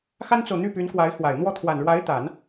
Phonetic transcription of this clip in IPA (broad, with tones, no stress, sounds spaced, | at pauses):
x a˥ n t͡s o˨ ʊ̯ n̪ y˥˩ p y˧˥ n k w a˧˥ ɪ̯ x w a˨˩ ɪ̯ n̪ w ɔ˥˩ t̪ʰ w a˨˩ n ɻ w a˧˥ ɪ̯ t̪ a˨˩˦ n